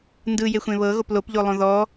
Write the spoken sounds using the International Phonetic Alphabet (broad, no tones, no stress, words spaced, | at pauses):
ndɯjexʷẽ βɤɣop lopʎolˠõ ðɔ